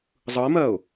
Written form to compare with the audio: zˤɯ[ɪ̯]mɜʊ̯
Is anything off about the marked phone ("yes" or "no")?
no